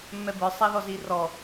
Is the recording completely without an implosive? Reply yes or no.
yes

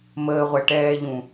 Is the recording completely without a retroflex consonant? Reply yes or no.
no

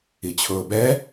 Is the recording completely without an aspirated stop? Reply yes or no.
no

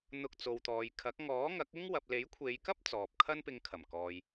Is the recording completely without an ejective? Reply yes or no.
yes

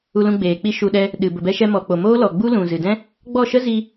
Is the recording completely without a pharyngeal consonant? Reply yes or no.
yes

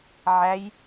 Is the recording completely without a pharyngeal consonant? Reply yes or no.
no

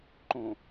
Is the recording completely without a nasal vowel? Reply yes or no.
no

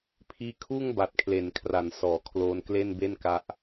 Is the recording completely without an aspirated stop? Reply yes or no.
no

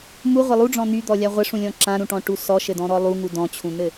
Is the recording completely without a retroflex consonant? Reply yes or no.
no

